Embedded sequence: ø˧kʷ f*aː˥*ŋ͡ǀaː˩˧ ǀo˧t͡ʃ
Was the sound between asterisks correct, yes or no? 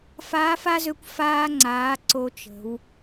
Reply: no